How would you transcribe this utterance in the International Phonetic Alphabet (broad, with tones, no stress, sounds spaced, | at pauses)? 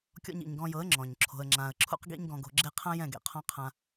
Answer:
kʲ ɔ̰˧ ɲ ḭ˨ ɲ ɡ ɔ̃˧ j ɤ˨˦ ə̯ ŋ͡ǁ ɔ̃˨ ɲ ǁʰ o̤˧ ə̯ ŋ͡ǁ ã˧ ə̯ ǁʰ ṵ˦ q ɡ ḭ˦ ɲ ɡ ɔ̃˧ ɡ o̤˧ ɡ͡ǁ e˦ qʰ ã˦ j ɛ̃˦˨ ɡ ḛ˧ qʰ ɔ̃˦ qʰ ã˦